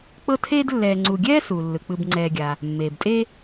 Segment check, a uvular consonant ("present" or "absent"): absent